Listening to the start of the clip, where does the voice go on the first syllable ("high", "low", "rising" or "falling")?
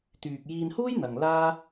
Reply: low